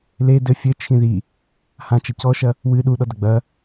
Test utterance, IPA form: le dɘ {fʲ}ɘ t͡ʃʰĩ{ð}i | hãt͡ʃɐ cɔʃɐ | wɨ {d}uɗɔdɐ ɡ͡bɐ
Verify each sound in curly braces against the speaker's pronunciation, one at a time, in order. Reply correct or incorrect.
correct, correct, incorrect: ɗ

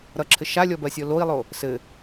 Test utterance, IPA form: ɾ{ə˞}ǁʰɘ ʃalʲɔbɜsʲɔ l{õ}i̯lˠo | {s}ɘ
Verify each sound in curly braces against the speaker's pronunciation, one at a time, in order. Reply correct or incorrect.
incorrect: ʌ, incorrect: o, correct

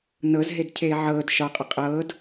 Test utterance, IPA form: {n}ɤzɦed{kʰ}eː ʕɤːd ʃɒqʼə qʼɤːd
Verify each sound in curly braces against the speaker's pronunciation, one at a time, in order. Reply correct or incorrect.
correct, incorrect: cʰ

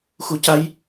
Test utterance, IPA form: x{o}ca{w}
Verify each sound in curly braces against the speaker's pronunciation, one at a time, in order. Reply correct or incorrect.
incorrect: u, incorrect: j

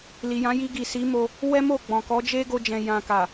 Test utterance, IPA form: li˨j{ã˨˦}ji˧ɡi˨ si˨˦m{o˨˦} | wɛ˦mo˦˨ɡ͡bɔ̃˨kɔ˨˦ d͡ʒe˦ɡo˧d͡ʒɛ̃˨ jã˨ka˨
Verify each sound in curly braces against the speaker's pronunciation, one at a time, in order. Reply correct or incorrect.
correct, incorrect: o˧

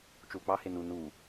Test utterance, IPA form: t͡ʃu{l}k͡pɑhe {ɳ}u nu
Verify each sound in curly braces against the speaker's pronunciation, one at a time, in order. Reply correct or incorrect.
correct, incorrect: n

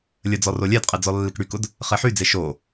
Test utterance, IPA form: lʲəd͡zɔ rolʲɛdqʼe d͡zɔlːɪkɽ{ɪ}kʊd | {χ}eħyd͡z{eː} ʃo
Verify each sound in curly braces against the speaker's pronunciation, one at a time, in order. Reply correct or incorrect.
incorrect: y, correct, incorrect: e

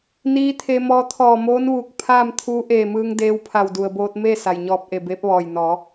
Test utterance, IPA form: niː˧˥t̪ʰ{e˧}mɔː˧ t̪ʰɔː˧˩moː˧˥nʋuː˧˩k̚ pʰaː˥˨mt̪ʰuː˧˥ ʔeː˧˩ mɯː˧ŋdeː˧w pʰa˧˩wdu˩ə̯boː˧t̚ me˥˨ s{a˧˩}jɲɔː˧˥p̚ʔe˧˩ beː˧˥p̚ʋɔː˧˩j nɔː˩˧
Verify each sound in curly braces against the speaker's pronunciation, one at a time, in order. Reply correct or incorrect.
correct, incorrect: a˩

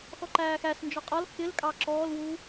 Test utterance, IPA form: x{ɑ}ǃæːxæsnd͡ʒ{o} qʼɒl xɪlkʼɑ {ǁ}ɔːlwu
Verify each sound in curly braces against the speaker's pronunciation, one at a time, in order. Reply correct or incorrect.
incorrect: ɔ, incorrect: ɔ, correct

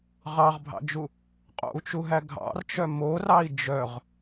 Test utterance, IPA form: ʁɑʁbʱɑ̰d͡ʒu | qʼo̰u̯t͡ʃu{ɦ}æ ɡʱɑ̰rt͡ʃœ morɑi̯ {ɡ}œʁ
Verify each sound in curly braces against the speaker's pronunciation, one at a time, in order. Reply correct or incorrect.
correct, incorrect: d͡ʒ

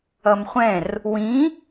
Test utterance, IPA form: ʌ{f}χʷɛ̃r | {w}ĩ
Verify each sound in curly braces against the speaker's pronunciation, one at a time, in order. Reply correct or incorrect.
incorrect: m, correct

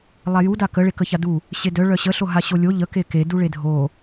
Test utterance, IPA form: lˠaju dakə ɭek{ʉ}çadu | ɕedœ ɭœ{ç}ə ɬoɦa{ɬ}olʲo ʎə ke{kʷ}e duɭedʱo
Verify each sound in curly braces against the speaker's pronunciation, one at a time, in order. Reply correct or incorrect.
incorrect: ə, incorrect: ɕ, incorrect: ɕ, incorrect: k

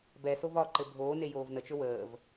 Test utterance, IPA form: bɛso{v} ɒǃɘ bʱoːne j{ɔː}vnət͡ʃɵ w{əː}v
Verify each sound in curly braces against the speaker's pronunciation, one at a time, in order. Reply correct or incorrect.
correct, incorrect: oː, correct

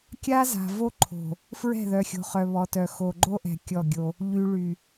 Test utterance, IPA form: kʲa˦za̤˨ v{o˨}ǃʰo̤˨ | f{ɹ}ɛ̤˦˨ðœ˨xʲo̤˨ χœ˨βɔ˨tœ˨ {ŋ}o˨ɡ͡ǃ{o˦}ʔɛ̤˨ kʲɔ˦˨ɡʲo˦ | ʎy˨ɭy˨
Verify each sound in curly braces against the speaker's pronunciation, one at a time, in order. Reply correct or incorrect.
incorrect: o˦, correct, incorrect: x, correct

